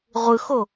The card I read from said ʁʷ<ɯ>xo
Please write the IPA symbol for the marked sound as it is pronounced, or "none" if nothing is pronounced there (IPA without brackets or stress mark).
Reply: ɯ